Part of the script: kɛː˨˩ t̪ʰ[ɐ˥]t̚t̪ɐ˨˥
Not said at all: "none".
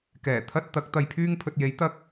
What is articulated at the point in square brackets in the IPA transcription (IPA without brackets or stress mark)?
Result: ɐ˥